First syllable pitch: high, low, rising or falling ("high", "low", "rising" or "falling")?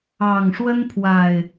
low